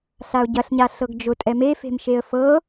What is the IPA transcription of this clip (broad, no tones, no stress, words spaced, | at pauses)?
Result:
ɬaʊ̯ɟɐɬ ɲaɬɤɡd͡ʒʊ tʼɛme fe̤mʃeə̯fɤ